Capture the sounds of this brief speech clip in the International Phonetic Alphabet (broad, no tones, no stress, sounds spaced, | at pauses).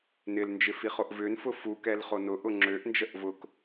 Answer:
n ɪ l n d͡ʒ ɪ f i χ o ʔ v ʏ n f ʊ f u k ɛ l χ o n ʊ ʔ ʊ ŋ͡ǁ ø ʔ n d͡ʒ ə ʔ v ʊ k